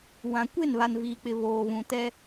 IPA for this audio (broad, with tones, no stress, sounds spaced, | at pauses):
w ã˨ kʷ e˦˨ n β a˨ n v iː˨ k͡p ɪ˨ β oː˨ β ũ˨ t ɛ˦